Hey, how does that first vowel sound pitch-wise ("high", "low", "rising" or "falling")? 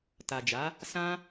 low